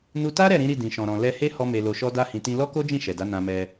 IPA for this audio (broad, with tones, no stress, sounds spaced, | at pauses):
n u˧ t a˦ ɾ ɛ˦˨ ɾ ĩ˨˦ ɾ i˦˨ d ĩ˨ ʃ ɔ̃˨ ɾ ɔ̃˨ l ɛ˧ h e˦ h ɔ˧ m e˨ l o˨ ʃ ɔ˧ d a˧ h ĩ˨ t ĩ˧ l ɔ˦ k o˦ d͡ʒ ĩ˦˨ ʃ ɛ˨ d a˨˦ n ã˧ m ɛ˧